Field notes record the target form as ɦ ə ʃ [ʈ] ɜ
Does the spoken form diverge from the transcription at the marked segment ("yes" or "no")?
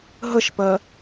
yes